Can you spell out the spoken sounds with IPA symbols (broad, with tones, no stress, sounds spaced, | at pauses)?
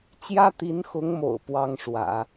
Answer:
t͡ɕ j ä˥ t̪ i˧˥ n x ʊ˧˥ ŋ m o̰˨˩ ʊ̯ p w ɑ˥ ŋ ʂ w ä̰˨˩˦